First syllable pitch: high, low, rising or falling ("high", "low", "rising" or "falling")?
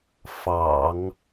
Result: low